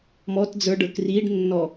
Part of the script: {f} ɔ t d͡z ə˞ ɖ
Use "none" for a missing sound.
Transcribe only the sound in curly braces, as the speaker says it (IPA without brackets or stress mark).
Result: m